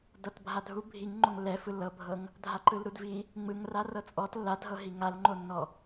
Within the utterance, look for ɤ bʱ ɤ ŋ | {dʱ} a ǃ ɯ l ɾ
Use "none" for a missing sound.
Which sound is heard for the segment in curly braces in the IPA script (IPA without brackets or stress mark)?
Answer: dʱ